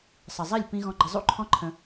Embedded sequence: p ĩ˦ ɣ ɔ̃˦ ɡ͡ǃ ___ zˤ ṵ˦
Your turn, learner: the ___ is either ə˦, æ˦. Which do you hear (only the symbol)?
ə˦